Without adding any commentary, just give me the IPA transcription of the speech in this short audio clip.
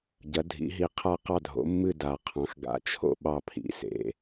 ɟ ɐ˩˥ dʱ ḭ˩˥ ɦ i˧ qʰ a˥˨ q ɑ˥˨ dʱ o̰˩˥ mː ɨ˥˨ d a˨˩˦ qʰ ɑ̃˩˥ x ɡ a̰˨˩˦ t͡ʃʰ o̰˥˨ ɓ ɑ˥˨ pʰ ḭ˩˥ s ḛ˧

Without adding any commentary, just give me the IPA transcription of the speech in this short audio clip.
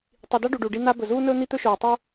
tˤ i˨ d a˦ ɖ u˨ ɖ u˨ ɖ i˦ n̪ a˥ b ɵ˨ z uː˥ n ɵː˥ n̪ i˦ t̪ ɵ˦ ʃ oː˨ tˤ o˥

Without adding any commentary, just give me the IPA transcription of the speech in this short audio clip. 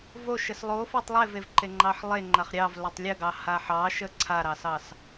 v o ʃ ə s lˠ o f o tˤ lˠ e v e v ǃ e ŋ͡ǃ ɑ ħ lˠ e ŋ͡ǃ a χ ɾʲ ɑ v l o tˤ lʲ ə ɡ ɑ h a ħ ɑ ʃ ə ǀʰ a ɾ ɑ s ɑ s

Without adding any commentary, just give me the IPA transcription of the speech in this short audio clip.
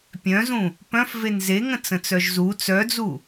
pʲ œ̃ z ũ | p œ̃ f v e n z e ŋ ə̃ t͡s ə̃ t͡s œ ʒ z u t͡s œ d͡z u

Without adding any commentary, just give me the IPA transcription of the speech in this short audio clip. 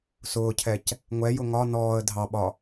s ʊː cʰ ɛ c | ŋʷ ɛ j ʊ ŋ ɒ n ɔː ə̯ dʱ ɑ ɓ ɒ

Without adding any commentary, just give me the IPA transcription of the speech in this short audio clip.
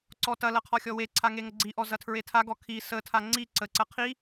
ǀ ɔ t ɐ l ɐ qʰ ɔ xʲ ɔ w e ǀʰ a ŋ e ŋ ə ɡ͡ǀ i ʔ ɔ z ɐ tʰ ɹ e tʰ a ɡ ɔ kʰ i s ə tʰ a ŋ͡ǀ i ǀ ə ǀ ɐ qʰ i

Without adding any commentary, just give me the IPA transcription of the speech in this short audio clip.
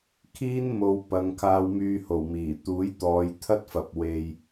kʰ iː˥ n m o˨ w p ɐ˨˧ ŋ kʰ aː˧ w m yː˧ h o˨˩ w m iː˨˩ t̪ uː˨˥ j t̪ ɔː˨˧ j t̪ʰ ɐ˥ t̚ f ɐ˨ p̚ w e˨ j

